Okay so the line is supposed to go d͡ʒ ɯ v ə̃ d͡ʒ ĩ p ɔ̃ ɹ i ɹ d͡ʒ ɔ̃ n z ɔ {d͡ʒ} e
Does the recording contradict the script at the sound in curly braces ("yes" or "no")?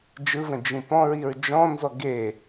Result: yes